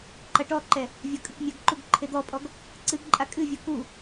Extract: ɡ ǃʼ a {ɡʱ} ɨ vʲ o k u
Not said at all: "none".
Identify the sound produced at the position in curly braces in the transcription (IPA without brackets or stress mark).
kʼ